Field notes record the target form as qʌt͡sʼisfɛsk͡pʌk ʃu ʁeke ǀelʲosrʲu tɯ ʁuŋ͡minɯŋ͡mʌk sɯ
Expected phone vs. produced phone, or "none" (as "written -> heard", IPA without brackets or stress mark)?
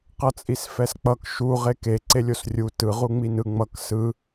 none